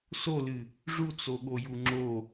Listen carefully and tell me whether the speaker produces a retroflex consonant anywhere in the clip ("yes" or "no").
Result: yes